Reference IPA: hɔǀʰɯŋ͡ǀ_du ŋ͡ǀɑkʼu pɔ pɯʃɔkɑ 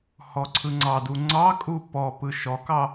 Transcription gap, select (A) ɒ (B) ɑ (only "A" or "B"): B